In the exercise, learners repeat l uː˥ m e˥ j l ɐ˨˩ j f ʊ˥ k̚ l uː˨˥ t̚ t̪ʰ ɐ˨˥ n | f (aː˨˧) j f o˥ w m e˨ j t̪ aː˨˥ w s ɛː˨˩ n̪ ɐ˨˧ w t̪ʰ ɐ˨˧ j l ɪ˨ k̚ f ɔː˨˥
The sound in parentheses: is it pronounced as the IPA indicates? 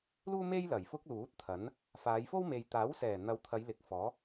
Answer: yes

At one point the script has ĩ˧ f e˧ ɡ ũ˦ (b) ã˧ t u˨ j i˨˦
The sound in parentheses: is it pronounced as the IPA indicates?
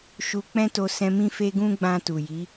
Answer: no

